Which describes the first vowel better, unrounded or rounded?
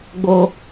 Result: rounded